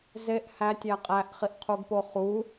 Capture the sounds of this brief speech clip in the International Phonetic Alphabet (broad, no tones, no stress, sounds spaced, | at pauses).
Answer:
z e ʔ h æ tʲ æ qʼ æ ʔ χ i ʔ qʰ u ɡ p o χ u